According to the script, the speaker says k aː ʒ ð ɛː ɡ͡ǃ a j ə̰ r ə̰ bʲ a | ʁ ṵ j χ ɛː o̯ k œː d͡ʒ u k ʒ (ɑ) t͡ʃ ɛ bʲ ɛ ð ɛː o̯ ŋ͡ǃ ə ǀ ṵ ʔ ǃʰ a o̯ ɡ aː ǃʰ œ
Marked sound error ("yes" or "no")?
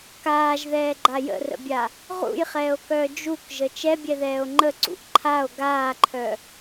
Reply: yes